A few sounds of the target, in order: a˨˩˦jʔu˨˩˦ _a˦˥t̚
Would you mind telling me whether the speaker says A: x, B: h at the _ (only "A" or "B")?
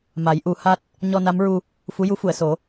B